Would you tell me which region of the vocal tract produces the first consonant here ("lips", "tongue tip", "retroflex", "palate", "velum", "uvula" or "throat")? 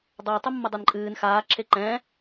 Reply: tongue tip